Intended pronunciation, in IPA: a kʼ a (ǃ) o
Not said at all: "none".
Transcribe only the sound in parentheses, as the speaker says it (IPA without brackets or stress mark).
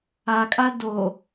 d